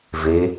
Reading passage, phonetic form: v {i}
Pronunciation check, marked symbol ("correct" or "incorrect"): incorrect